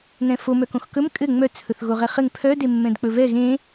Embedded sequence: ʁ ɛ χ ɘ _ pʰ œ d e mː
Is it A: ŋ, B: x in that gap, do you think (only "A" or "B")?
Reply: A